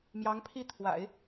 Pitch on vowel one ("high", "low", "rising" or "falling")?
rising